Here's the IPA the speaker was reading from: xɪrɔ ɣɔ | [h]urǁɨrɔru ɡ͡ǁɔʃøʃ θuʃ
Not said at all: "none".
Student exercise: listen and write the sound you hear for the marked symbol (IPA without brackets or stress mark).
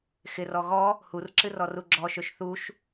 h